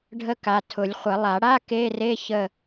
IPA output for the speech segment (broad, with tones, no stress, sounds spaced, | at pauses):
ɖʱ ə˦˥ k a˩˧˩ tʰ ʊ˨˩˦ lʲ χʷ ə˨˩˦ lˠ a˨˩˦ ɽ a˧˥˧ k e˧˥˧ r e˧˥˧ ç ə˦˨